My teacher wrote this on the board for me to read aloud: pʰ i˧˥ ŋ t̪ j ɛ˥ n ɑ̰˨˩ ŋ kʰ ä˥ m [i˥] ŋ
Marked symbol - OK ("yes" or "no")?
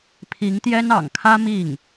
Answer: no